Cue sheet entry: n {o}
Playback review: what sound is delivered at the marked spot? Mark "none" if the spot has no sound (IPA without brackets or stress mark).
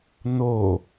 o